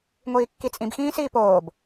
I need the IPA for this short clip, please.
ŋʷiːkːit͡sʼĩb xĩːsiːpoːb

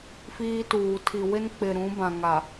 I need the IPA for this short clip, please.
fiː˦tuː˨ tʰi˨wɪ˦nk͡pɪ˨ ɾũ˨˦bã˨ŋa˨

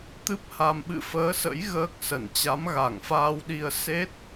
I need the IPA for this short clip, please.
t̪ɨ˦˥p̚ ha˧m ɓɨ̰˧˨fəː˨˦sə̰˧˥j ɣəː˦˥k̚sə˧˩n t͡ɕa˨˦mɣa˧˩ŋfaː˧w ɗi˧ə̯ se˦˥t̚

